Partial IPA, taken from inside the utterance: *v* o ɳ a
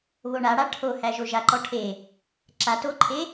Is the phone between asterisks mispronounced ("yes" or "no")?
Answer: yes